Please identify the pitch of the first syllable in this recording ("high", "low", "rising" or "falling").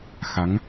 rising